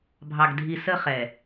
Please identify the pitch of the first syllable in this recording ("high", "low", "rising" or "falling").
low